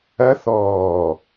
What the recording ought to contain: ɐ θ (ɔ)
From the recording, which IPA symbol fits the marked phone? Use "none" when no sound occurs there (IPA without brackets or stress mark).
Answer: ɔː